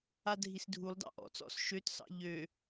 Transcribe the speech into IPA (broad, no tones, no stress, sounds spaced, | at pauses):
a dʱ i s dʱ u lˠ d ɑ̰ ʔ ɔ̰ t͡s ɔ̰ s ʃ ø t s ɑ̰ ʎ ø